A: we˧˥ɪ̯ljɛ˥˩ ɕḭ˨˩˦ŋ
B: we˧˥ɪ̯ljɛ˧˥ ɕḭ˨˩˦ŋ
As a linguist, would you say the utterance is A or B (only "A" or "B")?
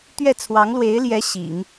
B